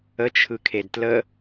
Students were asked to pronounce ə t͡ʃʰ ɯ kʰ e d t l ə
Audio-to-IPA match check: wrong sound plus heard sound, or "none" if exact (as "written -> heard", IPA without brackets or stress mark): none